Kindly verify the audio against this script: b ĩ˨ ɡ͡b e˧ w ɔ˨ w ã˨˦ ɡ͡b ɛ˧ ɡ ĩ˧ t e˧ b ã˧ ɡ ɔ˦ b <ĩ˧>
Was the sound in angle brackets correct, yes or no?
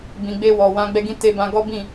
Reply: no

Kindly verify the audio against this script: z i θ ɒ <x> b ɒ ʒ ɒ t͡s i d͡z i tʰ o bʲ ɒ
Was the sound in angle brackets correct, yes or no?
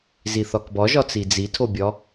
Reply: no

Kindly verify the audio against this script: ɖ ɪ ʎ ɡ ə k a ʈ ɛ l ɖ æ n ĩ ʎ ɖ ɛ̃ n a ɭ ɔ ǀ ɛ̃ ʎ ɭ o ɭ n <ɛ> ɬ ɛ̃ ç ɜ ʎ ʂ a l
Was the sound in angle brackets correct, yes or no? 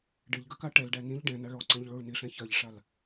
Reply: no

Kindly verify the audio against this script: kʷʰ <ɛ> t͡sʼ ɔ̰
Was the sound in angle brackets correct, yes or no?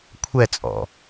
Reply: yes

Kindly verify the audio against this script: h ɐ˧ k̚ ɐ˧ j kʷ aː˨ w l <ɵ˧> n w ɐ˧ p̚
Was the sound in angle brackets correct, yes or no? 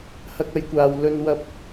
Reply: yes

